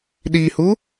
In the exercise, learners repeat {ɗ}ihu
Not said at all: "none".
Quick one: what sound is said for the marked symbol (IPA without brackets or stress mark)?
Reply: ɗ